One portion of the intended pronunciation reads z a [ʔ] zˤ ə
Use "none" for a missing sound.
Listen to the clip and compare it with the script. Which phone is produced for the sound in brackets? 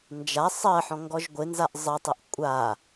ʔ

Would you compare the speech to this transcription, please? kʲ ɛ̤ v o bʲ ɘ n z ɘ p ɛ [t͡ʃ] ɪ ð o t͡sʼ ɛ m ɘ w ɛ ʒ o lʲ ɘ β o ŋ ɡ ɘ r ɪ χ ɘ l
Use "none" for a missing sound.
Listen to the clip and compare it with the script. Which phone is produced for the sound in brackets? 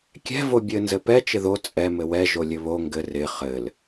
t͡ʃ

